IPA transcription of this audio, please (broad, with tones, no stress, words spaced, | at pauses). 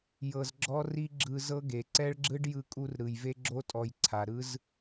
jɤ˧zɡ͡ǁɔ˦ri˦ ɡ͡ǁɯ˧zɤ˦ɡe˨ ǀɛ˦ɭɡ͡ǁɯ˦ɖ jɯ˧kʼu˧r ɾɯ˨jve˧ɡ͡ǁo˧tʼɔ˨j ǀʰa˨ɾɯ˦z